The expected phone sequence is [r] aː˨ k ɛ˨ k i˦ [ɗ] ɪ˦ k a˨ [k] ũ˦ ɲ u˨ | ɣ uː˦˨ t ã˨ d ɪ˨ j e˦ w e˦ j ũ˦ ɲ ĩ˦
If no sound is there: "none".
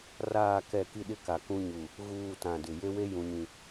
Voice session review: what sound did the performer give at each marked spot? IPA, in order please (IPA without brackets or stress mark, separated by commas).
r, ɗ, k